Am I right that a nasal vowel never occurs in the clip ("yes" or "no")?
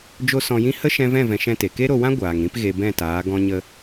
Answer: no